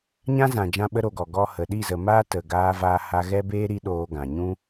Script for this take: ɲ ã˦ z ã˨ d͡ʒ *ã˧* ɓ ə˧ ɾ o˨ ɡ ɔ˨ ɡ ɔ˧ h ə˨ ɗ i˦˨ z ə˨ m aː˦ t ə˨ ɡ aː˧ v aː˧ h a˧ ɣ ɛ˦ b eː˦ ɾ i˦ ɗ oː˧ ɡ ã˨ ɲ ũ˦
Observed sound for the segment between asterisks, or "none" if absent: ã˧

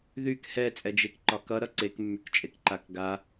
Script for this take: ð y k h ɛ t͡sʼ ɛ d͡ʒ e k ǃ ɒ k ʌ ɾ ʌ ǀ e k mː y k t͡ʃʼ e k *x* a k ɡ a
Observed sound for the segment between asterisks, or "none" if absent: ǃ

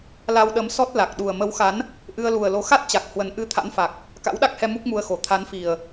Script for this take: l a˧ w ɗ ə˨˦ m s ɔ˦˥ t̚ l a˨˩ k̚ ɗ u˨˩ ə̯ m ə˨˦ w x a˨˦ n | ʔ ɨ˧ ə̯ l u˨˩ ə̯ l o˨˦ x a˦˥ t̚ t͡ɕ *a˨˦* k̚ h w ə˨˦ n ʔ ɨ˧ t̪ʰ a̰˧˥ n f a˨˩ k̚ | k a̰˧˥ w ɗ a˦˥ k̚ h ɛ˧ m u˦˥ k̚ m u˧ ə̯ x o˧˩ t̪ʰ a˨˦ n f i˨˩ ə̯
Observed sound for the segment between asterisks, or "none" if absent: a˨˩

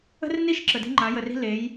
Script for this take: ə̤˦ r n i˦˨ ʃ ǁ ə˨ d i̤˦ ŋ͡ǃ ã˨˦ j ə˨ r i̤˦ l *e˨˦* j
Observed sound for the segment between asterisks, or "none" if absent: e˨˦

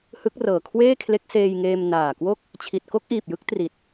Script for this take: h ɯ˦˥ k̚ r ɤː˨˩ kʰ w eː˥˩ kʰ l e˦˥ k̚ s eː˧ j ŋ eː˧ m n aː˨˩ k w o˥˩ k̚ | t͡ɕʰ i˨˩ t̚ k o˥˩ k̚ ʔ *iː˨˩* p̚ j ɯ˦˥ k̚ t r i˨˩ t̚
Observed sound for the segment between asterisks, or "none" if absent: iː˨˩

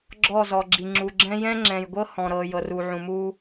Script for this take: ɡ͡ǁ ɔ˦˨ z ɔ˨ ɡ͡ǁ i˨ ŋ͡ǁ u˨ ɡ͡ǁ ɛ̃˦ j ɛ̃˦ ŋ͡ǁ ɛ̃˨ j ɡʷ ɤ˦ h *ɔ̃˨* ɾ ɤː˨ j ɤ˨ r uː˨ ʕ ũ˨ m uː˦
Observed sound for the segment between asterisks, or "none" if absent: ɔ̃˨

